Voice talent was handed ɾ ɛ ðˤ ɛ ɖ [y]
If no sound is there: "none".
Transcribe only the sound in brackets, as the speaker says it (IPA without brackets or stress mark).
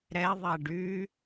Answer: y